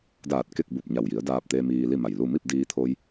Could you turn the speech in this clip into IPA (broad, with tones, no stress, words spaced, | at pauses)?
daː˧˩t̚ ke˥˨k̚bu˧˩p̚ ɲa˧˩wji˩˧ə̯daː˧p̚t̪eː˧ miː˧li˥˨ma˧˩jlu˥˨ mi˥˨p̚diː˧t̪ʰoː˧j